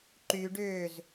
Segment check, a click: present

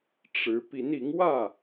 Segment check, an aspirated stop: absent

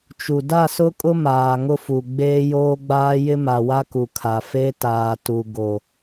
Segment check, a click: absent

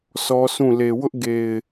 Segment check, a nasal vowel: present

